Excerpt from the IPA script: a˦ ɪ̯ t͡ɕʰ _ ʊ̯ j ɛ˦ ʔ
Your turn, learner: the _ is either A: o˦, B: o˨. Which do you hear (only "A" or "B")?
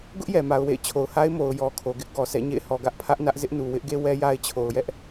B